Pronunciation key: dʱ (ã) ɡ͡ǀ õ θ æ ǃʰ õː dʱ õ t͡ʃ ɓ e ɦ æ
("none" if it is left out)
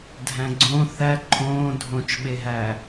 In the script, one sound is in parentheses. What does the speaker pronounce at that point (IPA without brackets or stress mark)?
æ̃